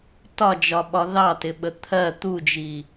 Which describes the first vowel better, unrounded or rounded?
rounded